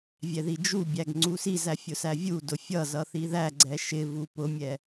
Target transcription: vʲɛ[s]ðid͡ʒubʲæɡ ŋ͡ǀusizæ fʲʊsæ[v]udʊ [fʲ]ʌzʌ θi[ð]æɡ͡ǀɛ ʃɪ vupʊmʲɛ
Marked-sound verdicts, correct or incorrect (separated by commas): incorrect, incorrect, correct, correct